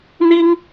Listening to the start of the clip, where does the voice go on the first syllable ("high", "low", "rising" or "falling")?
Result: high